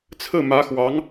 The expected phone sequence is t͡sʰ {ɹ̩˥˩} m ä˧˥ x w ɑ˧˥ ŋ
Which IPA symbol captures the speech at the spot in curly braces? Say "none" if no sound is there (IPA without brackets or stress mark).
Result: ɹ̩˥˩